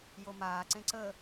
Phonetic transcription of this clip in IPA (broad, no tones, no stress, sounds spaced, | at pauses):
j o m aː ǀ ẽ ǀ ə